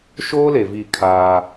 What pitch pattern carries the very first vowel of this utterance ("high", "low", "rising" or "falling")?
high